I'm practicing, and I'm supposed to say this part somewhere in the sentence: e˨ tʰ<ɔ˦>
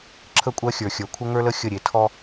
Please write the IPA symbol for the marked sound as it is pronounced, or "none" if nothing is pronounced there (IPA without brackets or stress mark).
ɔ˦